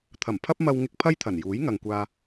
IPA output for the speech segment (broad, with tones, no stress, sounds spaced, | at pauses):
t̪ʰ ɐ˨˩ m pʰ ɐ˥ p̚ m ɐ˧ w ŋ ɪ˧ k̚ pʰ ɐ˥ j t̪ʰ ɐ˨˩ n j uː˨˥ j ŋ ɐ˨ ŋ kʷ aː˧